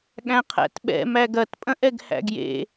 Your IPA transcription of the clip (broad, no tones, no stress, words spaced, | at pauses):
ɠæ̃qʰæ̰tɓɛ̰ mæɡɐt pʼɐ̃ʔɛɡhæ̰ɡjḛ